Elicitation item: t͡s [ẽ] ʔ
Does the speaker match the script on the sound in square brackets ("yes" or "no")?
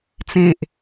yes